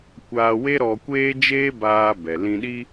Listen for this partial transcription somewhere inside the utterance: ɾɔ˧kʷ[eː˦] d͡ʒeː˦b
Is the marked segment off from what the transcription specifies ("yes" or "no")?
no